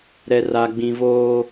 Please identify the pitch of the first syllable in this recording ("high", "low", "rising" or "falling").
high